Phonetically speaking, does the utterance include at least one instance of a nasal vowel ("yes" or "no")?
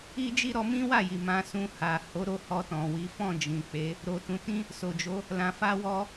yes